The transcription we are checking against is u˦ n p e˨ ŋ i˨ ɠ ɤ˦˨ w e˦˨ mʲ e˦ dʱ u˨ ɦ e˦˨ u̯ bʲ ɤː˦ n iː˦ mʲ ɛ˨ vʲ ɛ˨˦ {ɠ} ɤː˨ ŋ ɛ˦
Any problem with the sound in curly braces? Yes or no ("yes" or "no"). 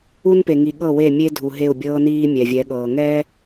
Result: no